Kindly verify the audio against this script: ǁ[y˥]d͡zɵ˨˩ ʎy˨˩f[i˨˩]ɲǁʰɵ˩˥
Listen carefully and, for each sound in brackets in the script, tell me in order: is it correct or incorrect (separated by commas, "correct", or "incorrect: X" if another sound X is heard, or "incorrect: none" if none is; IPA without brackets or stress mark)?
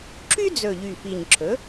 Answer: correct, correct